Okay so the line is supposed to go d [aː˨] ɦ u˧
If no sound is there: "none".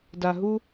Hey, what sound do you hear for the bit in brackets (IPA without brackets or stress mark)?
a˨